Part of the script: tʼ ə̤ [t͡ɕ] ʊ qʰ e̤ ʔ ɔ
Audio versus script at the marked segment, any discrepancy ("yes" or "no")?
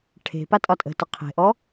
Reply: yes